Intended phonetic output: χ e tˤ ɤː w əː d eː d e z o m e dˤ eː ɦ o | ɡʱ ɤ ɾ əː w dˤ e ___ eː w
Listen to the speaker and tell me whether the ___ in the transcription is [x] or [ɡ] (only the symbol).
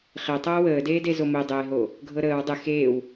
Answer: x